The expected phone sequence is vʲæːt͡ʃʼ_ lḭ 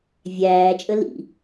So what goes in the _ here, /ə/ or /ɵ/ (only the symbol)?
ə